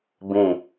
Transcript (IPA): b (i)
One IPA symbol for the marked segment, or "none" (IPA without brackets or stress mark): ĩ